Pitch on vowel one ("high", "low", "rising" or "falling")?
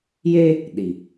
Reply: high